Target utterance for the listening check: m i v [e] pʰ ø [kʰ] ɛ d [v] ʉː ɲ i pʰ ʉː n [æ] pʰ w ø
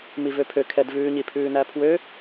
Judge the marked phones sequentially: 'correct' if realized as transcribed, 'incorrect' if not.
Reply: incorrect: ø, correct, correct, correct

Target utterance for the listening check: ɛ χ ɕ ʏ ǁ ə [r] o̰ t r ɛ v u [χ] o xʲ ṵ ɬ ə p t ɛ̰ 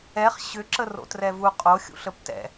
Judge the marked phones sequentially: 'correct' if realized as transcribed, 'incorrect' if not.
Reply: correct, incorrect: qʼ

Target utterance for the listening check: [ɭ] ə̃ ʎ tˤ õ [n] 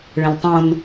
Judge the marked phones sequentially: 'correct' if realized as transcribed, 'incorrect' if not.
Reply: correct, correct

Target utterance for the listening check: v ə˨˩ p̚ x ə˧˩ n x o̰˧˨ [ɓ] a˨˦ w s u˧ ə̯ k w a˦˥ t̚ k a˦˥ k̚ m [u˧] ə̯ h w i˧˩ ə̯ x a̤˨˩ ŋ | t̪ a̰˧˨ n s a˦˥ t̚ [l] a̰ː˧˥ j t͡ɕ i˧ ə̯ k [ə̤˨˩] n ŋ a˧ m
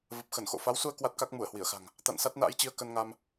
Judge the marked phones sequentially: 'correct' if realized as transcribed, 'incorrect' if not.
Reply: incorrect: f, incorrect: u˧˩, incorrect: n, incorrect: ə˧

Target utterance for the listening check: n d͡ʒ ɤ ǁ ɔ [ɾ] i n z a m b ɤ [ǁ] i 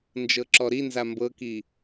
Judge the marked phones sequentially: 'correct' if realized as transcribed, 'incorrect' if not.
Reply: correct, incorrect: k

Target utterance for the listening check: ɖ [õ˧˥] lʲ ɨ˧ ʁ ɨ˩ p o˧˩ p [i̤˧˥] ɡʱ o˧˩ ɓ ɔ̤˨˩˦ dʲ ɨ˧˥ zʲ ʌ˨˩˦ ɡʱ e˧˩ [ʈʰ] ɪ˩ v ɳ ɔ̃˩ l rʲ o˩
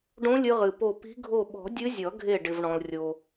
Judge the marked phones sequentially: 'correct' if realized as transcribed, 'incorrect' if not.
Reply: correct, correct, incorrect: ɖ

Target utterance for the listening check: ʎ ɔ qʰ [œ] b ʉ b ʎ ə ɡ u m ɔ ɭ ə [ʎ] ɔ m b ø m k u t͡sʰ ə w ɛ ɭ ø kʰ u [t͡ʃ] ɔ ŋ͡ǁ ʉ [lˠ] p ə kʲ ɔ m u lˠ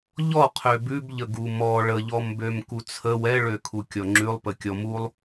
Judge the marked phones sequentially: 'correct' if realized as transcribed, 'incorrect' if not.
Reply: incorrect: ø, correct, incorrect: kʲ, correct

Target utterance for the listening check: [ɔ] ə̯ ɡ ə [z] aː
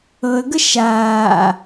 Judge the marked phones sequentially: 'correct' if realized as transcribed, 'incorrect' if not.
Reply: incorrect: ɤ, incorrect: ʃ

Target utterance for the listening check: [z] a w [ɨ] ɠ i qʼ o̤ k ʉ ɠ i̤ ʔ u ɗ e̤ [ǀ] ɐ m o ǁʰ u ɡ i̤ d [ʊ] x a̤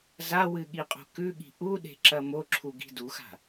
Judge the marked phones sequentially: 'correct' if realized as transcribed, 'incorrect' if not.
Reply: correct, correct, incorrect: ǁ, incorrect: u

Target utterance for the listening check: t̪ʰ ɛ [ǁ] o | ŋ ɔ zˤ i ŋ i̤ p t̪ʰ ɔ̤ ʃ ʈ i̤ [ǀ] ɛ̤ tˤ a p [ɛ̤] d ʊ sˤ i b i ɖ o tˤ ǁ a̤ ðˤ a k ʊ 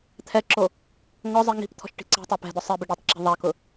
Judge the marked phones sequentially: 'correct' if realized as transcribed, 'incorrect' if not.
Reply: correct, correct, correct

